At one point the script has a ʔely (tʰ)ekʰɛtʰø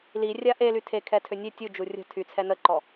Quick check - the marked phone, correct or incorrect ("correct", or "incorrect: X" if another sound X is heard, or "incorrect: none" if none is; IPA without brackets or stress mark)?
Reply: correct